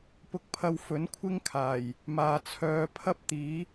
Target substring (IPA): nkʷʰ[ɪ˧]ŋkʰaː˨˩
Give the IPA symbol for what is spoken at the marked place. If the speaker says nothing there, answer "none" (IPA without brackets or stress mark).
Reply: ɪ˥